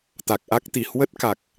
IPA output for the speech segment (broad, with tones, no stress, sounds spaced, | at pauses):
t̪ a˨˩ k̚ ʔ a˦˥ k̚ t̪ i˧˩ h w ə˦˥ t̚ k a˨˩ k̚